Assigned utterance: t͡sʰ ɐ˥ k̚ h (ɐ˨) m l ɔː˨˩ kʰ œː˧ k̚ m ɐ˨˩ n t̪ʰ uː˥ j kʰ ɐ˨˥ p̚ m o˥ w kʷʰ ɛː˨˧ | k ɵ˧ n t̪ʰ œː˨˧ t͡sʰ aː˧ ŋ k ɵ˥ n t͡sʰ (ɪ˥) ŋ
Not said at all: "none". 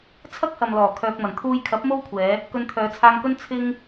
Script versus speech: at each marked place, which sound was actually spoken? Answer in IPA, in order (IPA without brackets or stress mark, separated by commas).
ɐ˨, ɪ˥